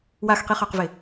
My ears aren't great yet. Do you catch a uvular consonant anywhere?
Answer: yes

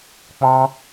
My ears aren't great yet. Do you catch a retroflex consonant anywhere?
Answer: no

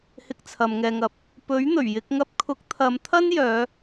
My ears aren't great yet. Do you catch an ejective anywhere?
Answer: no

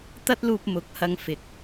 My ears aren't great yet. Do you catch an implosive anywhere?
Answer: no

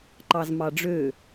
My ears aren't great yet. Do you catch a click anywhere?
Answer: yes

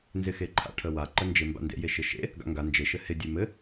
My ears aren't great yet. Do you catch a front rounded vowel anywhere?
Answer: no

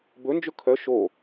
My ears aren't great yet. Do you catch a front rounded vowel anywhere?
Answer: yes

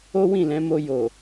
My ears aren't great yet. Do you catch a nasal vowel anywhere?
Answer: yes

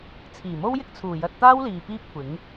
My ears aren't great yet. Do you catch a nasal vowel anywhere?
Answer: no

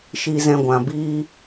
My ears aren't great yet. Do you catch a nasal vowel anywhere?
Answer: yes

